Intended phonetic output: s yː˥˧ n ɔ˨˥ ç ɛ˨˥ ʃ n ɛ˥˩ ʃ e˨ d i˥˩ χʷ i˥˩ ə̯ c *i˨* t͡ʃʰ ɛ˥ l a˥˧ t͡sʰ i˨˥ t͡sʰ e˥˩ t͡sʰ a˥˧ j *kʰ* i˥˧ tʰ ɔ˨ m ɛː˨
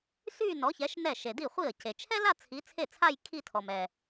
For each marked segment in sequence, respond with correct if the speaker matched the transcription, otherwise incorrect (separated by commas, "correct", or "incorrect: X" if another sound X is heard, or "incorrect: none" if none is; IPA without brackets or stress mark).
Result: incorrect: e˨, correct